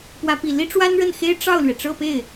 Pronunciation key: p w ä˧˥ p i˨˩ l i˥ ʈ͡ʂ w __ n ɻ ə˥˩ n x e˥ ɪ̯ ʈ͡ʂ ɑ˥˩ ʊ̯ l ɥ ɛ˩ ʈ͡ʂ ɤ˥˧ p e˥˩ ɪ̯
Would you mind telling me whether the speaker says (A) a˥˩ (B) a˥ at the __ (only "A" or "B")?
B